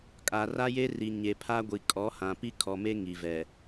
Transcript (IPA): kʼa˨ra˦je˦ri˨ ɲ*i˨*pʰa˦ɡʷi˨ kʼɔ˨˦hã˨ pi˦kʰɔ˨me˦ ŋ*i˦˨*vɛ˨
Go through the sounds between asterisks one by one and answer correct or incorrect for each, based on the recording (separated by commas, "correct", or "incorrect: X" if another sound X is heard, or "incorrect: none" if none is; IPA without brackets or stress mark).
incorrect: e˨, incorrect: i˨